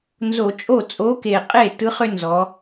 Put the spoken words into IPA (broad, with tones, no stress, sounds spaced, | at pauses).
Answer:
n z o˧˩˧ t͡ʃʼ o˥˩ t͡sʼ o˨˥ k e˨˩ qʼ e˥˩ t ɯ˨˥ χ ʏ˦ n z ɔ˩˧